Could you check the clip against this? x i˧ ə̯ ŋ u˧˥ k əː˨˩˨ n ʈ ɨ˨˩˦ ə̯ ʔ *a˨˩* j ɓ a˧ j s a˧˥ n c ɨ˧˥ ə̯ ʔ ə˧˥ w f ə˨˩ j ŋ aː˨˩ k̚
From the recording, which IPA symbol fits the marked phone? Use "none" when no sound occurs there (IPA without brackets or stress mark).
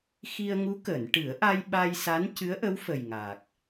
a˧